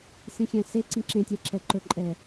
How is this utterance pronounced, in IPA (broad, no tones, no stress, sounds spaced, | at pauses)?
s ĩ xʲ æ̃ s e ǀ ĩ ǁ ẽ tʲ ɛ ǁ ɛ ǃ ɵ ǃʼ ɛ